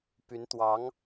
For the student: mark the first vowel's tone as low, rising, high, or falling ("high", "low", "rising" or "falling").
rising